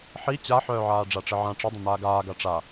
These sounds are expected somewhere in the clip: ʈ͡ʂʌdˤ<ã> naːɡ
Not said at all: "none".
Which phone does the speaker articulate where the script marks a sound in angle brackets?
ə̃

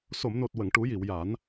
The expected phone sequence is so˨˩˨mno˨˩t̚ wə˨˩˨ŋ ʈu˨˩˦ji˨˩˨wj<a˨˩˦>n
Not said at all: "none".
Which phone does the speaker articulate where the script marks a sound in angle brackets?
a˨˩˦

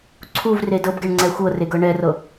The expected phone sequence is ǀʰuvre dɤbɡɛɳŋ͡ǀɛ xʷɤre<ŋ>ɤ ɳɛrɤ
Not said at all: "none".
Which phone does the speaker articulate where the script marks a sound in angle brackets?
ɡ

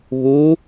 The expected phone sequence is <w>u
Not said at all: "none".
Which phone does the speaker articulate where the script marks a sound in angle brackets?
β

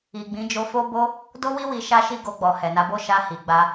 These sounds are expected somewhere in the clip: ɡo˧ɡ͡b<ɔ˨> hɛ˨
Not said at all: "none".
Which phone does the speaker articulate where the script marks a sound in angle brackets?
ɔ˨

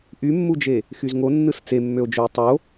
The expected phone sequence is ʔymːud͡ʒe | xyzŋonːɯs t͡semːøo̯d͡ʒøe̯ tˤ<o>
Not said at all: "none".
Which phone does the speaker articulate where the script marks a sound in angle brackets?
o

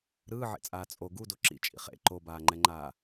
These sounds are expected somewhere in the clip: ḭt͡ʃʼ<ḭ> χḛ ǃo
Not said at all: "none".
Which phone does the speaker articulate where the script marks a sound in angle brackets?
ḭ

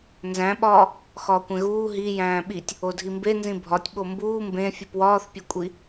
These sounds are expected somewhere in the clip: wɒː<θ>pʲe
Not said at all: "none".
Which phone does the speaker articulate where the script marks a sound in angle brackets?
θ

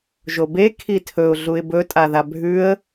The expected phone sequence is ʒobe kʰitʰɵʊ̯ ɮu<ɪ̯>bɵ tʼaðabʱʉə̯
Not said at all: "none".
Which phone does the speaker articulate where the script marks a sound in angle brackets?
ɪ̯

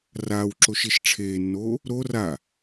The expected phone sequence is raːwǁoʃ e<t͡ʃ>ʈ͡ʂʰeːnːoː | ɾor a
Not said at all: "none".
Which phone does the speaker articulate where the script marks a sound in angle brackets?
ʃ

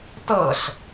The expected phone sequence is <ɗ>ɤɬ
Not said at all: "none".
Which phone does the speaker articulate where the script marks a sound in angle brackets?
t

